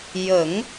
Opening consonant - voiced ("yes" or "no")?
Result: yes